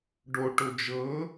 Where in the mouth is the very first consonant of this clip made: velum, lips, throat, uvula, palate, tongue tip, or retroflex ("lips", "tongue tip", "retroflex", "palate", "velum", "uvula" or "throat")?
retroflex